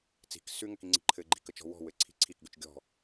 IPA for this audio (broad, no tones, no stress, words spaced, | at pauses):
t͡si̤k sʉŋɘkiŋ͡ǀi̤ ǃʰɘɡ͡ǃi̤kə t͡ʃɔ̤wɔ̤ wɘǀʰi̤ǀʰikɡʉt͡ʃ ɡʲɔ̤